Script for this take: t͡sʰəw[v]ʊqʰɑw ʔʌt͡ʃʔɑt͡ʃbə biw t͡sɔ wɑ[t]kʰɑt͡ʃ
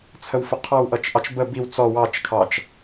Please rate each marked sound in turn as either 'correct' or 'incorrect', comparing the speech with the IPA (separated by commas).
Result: incorrect, incorrect